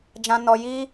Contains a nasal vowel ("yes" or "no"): yes